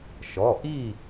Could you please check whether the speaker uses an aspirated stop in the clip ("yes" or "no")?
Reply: no